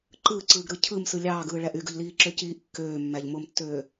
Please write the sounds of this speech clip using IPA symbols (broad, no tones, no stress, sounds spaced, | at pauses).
ǃ ɯː ǀ ɯː ɡ ɾ ɯ cʰ ɯ m s ɯ lʲ ɑː ɡ ɯː ɭ æ ʔ y ɡ ɯ ʎ l iː ǁ ø c iː ʔ kː øː mː æ ʎ m o m tː øː